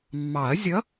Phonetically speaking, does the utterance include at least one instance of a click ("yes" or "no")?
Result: no